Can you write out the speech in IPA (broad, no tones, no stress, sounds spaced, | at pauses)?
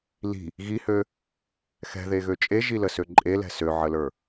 l i̤ | ɣ i h ø | x ɛ̤ ð e ɣ ø t͡ʃʼ e ʒ i l ə s ø ǃʼ e l ɛ̤ s ø ʕ ə l ə˞